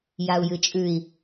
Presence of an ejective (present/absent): present